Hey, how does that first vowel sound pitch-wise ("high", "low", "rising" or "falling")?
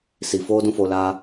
low